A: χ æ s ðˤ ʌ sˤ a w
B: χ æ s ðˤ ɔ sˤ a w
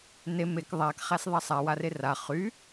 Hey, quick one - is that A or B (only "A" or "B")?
A